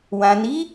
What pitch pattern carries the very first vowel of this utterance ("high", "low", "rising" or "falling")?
low